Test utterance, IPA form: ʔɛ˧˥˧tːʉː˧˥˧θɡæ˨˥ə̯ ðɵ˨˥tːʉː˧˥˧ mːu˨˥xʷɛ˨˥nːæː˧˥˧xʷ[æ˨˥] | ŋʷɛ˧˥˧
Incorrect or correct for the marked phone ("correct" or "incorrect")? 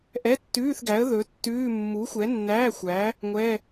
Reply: correct